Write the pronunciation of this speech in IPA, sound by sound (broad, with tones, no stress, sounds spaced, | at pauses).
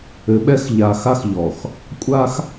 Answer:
ɘ˨˦ ɓ ɛ˦ x ʎ a˨ x a˦ x ʎ ɔ˨ x | kʷʼ a˦ x